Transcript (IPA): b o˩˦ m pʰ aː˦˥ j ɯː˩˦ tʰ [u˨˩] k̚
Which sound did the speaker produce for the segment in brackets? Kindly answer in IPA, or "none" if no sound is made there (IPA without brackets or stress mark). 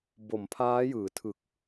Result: ɯ˨˩